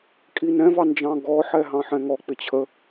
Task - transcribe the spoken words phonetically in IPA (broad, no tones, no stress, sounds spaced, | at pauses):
kʼ i n ɛ̃ v ɑ n d͡ʒ ɑ̃ ɡ ɔ ħ ɛ ɦ ɑ̃ ħ ɛ̃ ŋ ɔ k͡p ɪ t͡ɕʰ ə